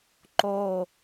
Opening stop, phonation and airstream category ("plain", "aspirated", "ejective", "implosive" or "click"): click